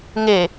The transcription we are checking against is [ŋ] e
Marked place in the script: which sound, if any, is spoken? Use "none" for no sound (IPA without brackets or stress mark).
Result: ŋ